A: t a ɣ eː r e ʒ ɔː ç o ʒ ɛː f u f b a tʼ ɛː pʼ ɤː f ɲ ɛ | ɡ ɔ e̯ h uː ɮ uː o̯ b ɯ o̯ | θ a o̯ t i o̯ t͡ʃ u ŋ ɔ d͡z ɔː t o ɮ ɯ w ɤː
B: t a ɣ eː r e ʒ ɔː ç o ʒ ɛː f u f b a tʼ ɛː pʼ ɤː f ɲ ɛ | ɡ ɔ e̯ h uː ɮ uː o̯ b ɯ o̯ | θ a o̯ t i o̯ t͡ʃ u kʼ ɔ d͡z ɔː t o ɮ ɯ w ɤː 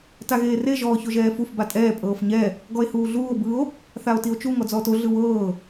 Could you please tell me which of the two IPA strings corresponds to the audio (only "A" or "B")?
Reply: A